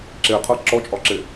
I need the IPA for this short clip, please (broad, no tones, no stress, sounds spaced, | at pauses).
ǁ e qʰ ɤ ǁ ɔ t͡ʃʼ ɒ ǁ e